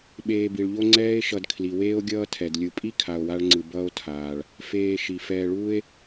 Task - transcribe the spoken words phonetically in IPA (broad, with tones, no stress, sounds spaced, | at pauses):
ɓ eː˨ b i˩ ɭ ʎ o˦ ŋ͡ǀ ɛː˦ e̯ ʃ ʌ˨ d kʰ l i˩ w eː˦ o̯ ɡʲ ʌː˦ tʰ ɛ˩ d lʲ ɯ˨ pʼ i˥ kʰ a˨ o̯ w a˦ ɭ ŋ͡ǀ ɯ˨ b ʌː˦ o̯ tʰ aː˩ ɭ | f eː˨ ʃ i˩ f ɛː˨ ɭ uː˦ e̯